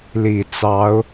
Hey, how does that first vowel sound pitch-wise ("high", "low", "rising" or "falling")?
low